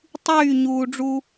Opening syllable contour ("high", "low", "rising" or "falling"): falling